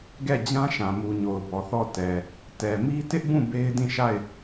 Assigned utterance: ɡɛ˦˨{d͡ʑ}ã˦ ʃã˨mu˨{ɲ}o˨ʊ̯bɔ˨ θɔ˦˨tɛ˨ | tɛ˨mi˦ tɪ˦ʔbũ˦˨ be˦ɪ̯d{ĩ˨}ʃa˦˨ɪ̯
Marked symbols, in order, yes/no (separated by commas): yes, yes, no